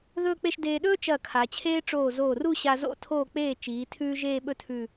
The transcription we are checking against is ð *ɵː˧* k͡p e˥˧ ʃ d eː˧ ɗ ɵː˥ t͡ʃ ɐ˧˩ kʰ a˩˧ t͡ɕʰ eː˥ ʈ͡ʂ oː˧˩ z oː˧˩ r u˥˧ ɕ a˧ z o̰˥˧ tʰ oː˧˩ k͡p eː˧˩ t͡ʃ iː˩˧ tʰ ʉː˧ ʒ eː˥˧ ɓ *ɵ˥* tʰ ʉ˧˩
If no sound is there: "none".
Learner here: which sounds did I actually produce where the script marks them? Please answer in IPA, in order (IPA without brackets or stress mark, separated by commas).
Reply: ɵː˥˧, ɵ˥˧